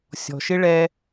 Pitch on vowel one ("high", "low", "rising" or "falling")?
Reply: low